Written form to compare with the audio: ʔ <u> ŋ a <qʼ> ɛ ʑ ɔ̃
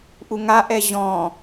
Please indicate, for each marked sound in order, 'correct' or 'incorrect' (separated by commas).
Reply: correct, incorrect